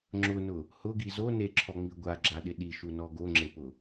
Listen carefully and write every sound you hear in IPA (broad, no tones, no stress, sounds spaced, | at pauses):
ŋ͡ǁ ʊ n ʊ | h ʊ ɡ i z o n e ǁʰ ɔ ŋ͡m i ɡʷ a ɡ͡ǁ a ɗ ɪ ɗ i ʃ u n ɔ ɡ o ŋ͡ǁ e p ʊ